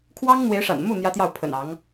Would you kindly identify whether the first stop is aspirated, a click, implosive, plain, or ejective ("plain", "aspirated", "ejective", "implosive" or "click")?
aspirated